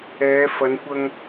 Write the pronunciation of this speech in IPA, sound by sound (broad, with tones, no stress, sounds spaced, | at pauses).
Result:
ɛː˨˧ f ɐ˨˧ n kʷ ɐ˧ ŋ